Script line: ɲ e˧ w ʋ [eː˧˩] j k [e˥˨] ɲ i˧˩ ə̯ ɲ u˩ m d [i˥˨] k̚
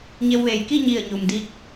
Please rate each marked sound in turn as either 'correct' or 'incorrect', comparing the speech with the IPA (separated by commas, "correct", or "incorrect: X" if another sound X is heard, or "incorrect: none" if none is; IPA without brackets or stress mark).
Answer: incorrect: eː˩, incorrect: i˥˨, correct